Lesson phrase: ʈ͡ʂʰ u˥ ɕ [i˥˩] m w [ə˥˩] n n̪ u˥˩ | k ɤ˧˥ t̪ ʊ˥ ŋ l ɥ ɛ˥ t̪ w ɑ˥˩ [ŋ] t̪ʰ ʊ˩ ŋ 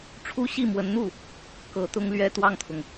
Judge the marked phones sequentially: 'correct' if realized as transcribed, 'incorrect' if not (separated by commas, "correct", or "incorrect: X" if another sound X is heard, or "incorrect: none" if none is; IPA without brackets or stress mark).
correct, incorrect: ə˧˥, correct